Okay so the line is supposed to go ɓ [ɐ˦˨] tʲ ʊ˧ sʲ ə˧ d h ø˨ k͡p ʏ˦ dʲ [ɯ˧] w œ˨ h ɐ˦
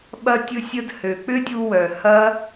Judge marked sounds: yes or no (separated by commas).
no, no